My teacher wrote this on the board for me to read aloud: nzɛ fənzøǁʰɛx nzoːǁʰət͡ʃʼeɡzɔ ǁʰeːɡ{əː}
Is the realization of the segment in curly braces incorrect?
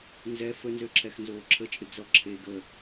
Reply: no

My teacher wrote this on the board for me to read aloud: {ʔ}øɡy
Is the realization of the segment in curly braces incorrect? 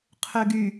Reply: yes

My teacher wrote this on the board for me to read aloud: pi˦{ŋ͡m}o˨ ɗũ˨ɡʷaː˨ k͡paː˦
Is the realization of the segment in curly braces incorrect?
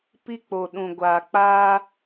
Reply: yes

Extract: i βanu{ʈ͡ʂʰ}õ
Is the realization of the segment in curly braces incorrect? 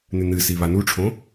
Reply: no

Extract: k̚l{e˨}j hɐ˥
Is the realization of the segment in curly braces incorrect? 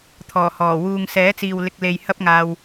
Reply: no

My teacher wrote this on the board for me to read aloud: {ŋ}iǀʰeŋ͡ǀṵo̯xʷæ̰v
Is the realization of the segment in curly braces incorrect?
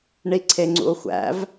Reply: yes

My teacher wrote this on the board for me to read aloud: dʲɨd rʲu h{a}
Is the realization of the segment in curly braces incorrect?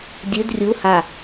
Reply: no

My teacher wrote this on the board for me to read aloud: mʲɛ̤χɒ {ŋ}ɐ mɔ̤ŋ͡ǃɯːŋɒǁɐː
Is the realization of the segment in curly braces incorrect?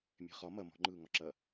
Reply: yes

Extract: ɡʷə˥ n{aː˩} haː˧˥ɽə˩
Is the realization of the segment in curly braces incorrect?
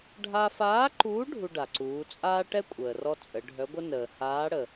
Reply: yes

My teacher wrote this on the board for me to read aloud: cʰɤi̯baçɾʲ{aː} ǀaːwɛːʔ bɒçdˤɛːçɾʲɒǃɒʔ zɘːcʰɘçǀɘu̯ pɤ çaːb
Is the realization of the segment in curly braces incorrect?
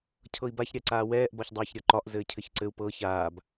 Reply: yes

